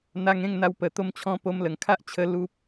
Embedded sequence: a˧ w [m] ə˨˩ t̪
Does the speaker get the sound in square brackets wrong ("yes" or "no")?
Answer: yes